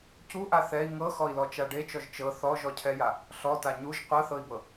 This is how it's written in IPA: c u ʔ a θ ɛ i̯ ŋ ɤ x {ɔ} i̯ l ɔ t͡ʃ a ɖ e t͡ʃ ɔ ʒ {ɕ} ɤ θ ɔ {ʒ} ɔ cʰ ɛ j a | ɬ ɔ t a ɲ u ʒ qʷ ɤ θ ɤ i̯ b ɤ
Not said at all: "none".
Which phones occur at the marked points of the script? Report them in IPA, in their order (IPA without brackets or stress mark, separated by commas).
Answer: ɔ, t͡ʃ, ʒ